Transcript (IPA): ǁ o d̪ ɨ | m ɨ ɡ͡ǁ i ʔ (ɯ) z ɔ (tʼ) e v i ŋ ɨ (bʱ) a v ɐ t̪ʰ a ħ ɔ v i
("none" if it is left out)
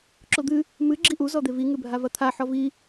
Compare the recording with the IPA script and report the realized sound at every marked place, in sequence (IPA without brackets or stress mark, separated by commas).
u, d̪, bʱ